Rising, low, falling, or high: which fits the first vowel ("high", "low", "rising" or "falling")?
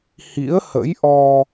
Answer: rising